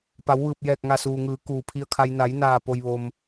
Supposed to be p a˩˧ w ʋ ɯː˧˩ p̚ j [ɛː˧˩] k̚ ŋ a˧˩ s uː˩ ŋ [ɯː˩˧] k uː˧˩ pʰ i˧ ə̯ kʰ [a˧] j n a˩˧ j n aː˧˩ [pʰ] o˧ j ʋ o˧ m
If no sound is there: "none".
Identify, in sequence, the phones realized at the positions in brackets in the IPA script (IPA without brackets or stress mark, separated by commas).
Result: ɛː˧˩, ɯː˩˧, a˧, p